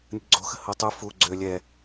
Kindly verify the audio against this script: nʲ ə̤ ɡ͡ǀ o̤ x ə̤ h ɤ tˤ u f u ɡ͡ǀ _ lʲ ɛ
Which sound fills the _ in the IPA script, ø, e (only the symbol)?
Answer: ø